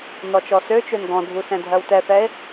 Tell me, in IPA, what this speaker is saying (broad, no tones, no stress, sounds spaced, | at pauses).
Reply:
n ɔ t͡ʃ ɔ s ø t͡ʃ ø n ɡ ɔ̃ dʱ u s ɛ̃ dʱ ɜ w t ɛ θ ɛ e̯